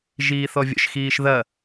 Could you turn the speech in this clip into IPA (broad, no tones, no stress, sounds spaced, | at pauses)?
ʒ iː θ ɔ vʲ ə̰ ʃ x iː ʃ ð ɐ